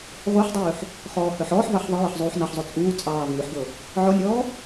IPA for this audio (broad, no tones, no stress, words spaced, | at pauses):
ʁʷœħdˤʉːħ | χɔːhœħɔːħvɑħ ðˤəjəħ zˤuːħnɑħzˤo t͡sʼuː t͡sʼɑːvʉːħɡɤ | ʕɔnʲɔː